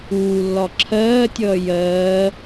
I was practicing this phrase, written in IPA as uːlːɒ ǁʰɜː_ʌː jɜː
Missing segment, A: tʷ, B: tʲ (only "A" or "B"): B